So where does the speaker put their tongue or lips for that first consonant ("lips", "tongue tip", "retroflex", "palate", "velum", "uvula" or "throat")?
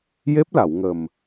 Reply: palate